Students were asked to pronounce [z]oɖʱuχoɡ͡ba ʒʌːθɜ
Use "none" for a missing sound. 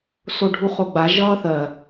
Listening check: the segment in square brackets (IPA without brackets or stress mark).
s